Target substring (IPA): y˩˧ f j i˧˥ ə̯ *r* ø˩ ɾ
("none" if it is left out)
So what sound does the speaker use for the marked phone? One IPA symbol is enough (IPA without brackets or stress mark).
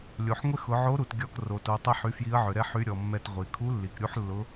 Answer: ʕ